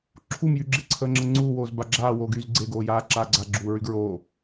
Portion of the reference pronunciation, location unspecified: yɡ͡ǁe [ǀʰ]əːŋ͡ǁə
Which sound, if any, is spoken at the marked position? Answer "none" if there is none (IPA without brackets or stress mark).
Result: ǀʰ